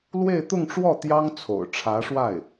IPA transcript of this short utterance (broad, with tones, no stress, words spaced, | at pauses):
lwe˥˧ɪ̯t̪ʊ˥˧ŋʈ͡ʂwɔ˥˩ t̪jɑ˥ŋt͡sʰo̰˨˩ʊ̯ ʈ͡ʂʰä˧˥ʂwa˥˩ɪ̯